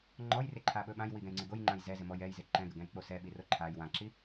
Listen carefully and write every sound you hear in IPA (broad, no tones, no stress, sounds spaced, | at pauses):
ŋ͡ǃ ɔ j r ɪ ǃʰ a ɓ ɵ ɓ ã j w i ɡ ɛ̃ j ŋ͡ǀ ɪ ɡ o j ŋ͡ǃ ã j z ɛ z ɪ m ɔ j ɛ j z ɪ ǃ ɛ̃ ɡ ə ɡ ɛ̃ j k͡p o s ɛ ɓ i r o ǃʰ a j w ã ǁ i